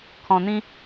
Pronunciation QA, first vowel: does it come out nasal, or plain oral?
nasal